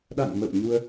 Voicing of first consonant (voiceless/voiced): voiced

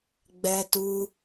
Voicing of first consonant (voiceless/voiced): voiced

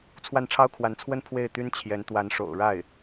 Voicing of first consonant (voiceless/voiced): voiceless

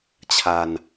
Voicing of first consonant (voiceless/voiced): voiceless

